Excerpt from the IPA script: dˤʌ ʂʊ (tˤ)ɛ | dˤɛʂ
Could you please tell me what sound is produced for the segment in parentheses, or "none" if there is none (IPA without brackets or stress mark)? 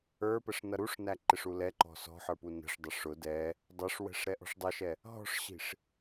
d